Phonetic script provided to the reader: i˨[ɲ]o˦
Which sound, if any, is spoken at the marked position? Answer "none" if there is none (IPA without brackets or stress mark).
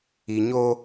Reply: ɲ